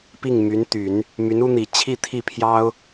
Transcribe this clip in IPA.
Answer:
pi˥˩ŋmy˧˥nt̪y˨˩˦n | my˧˥nu˥n̪i˨˩ t͡ɕʰi˥˧t̪ʰi˥˩pʰjɑ˥ʊ̯

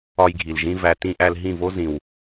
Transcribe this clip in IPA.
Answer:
ɒ˧jɡʱi˨lʒĩ˧ væ˨tĩ˧ ʔæ˧lɦĩ˦˨vo˦ zĩ˨w

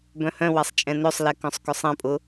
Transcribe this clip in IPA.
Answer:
bœ̃hœ̃wɛsˤ t͡ʃʼɛ̃nøsˤlɛ kœ̃sˤkʏsˤɛ̃pʼʊ

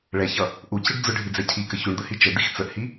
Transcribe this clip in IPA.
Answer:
ɭɛçʌ | ʔuciɖ d͡zʊɖʱid͡zɛ cʰikə çuɳd̪əhi t͡ʃəd̪ix t͡səʔhi

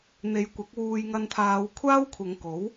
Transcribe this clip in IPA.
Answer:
n̪e˨˧jkʷɐ˨˥k̚wuː˧j ŋɐ˧nt̪ʰaː˨˧wkʷʰaː˥wkʷʰɐ˨˧ŋ ko˨˥w

